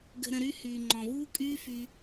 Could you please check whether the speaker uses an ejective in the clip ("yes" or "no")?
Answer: yes